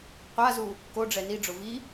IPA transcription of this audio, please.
qʷ a z u | k o ɖ͡ʐ ɛ n i ɖ͡ʐ ʊ v i

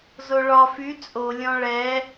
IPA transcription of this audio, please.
z o ɭ ɒ f y t͡sʼ o lʲ ɔ̃ ɭ ɛ

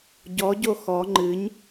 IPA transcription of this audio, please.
ɟ ɔ ɟ o x ɔ ŋ͡ǃ ɨ ɲ

